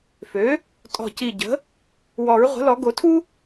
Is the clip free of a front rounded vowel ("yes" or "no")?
no